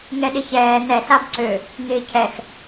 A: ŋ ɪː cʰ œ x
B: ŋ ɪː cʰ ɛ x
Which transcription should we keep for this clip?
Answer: B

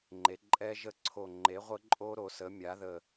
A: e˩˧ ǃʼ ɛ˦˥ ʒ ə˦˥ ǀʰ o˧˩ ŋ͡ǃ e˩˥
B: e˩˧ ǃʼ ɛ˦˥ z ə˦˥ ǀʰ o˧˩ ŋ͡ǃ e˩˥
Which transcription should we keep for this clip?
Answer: A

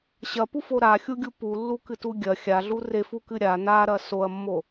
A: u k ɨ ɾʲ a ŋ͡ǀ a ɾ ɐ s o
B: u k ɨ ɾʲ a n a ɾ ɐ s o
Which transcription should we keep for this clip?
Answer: B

